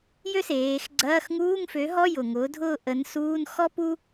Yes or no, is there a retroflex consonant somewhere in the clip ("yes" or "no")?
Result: no